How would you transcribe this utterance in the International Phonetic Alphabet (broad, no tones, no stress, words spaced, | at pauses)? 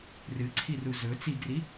rɨǀʰiru zɵ t͡siɡri